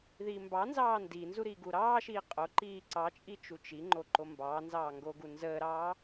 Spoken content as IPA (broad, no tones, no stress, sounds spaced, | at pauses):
ð iː m b ɑ n z ɑː n d i n z u ɾ i ɡ u ɾ ɑː ʃ iː qʼ o ǃ iː ǀ ɑ t͡ʃʼ i t͡ʃ u t͡ʃ i ŋ͡ǃ o ǃ o m b ɑː n z ɑː ŋ ɡ o ɡ u n z əː ɾ ɑː